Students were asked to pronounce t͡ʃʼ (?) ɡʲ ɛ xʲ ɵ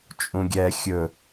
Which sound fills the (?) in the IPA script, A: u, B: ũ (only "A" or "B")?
B